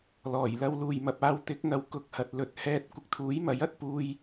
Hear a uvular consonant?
no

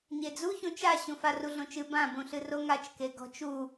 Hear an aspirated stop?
no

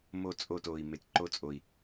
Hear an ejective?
yes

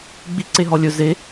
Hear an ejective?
no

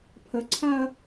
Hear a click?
yes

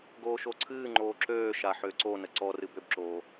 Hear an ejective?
no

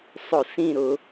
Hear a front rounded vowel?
no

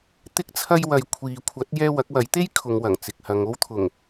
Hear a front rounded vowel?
no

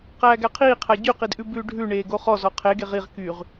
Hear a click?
no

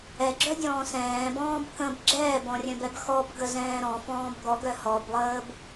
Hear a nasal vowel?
yes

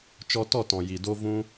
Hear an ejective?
no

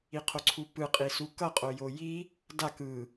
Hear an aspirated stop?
yes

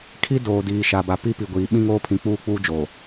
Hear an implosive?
yes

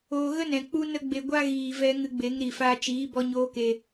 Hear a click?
no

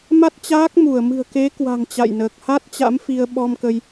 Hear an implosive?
yes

